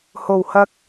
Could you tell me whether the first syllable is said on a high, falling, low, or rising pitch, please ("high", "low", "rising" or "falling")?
low